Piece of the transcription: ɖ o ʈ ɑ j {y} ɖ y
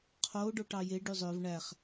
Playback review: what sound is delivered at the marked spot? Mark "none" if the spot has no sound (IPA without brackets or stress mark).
e